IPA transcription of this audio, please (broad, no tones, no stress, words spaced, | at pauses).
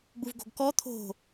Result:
ɡ͡buvɡo̤ɡkɔ t̪ʰo̤